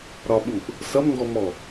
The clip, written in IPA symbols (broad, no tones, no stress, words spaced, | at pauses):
ɾɒɓuʔ | sʌmŋɡɔmɔ